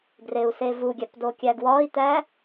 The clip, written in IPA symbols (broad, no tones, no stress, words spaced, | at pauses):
ɡreu̯sevuɡʲæp dokʲæɡwɒi̯t̪æ